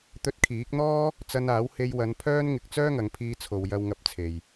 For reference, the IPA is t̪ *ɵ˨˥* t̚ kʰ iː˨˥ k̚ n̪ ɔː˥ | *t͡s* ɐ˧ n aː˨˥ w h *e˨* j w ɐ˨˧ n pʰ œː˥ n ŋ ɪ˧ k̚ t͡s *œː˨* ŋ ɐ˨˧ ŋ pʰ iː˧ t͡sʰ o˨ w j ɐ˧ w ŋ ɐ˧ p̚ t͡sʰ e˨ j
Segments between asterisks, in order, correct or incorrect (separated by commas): incorrect, correct, incorrect, incorrect